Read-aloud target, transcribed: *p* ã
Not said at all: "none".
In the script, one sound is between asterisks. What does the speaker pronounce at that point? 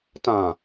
t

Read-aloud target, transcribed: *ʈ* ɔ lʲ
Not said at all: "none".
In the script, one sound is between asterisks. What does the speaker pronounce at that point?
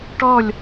ʈ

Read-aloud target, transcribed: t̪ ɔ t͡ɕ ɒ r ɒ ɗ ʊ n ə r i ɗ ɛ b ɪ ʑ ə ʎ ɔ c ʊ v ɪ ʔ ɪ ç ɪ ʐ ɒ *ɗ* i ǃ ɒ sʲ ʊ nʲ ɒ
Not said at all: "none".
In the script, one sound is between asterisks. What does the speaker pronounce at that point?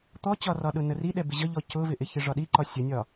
ɗ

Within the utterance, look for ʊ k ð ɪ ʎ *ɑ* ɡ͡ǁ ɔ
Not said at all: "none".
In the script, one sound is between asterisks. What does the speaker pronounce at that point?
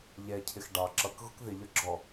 ʌ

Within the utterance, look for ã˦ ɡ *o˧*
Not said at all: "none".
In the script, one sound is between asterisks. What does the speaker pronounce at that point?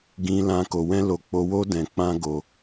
o˧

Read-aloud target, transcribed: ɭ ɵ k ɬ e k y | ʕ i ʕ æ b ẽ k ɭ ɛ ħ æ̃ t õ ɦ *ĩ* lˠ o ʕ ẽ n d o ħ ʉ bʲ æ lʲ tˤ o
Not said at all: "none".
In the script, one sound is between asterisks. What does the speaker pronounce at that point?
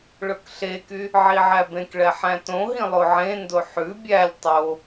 ĩ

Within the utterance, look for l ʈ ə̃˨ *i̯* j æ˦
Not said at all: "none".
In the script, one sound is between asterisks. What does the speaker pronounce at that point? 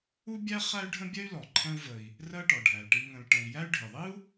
i̯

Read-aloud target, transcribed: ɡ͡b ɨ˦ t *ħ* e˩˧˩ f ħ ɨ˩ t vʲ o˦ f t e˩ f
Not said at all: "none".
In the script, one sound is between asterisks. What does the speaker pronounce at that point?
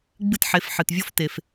ħ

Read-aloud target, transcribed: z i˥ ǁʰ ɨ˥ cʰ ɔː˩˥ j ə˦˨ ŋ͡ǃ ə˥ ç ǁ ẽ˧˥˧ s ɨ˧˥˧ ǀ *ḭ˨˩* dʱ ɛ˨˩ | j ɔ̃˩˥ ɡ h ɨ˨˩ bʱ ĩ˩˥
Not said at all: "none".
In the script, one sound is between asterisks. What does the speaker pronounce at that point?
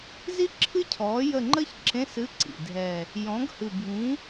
ḭ˨˩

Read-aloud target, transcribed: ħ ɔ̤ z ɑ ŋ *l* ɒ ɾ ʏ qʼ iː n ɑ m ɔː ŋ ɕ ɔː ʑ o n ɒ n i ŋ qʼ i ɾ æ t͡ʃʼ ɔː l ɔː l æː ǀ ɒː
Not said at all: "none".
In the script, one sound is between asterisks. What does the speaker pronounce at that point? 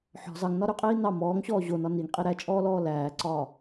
n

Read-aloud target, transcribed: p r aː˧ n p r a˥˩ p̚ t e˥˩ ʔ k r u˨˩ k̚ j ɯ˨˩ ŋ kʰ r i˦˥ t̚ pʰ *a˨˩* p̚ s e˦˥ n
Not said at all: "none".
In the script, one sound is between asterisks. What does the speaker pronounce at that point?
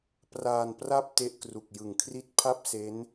a˥˩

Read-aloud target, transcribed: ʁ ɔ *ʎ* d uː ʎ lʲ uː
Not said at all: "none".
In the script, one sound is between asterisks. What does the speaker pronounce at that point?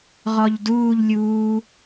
ʎ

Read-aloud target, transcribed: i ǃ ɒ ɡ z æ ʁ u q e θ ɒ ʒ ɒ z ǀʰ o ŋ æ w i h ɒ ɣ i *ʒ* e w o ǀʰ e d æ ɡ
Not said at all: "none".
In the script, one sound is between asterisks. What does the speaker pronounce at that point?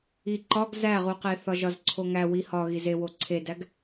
z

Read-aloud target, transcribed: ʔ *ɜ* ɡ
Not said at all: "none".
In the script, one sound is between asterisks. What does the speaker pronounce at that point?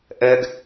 ɜ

